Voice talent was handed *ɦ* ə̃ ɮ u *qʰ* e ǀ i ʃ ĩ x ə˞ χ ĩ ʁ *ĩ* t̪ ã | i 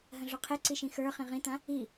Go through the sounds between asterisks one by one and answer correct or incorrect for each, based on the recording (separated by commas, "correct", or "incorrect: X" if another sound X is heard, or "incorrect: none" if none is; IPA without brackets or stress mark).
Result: correct, correct, correct